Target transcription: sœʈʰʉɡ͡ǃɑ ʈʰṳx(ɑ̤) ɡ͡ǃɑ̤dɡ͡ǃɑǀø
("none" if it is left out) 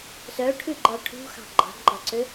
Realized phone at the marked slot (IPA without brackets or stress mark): ɑ̤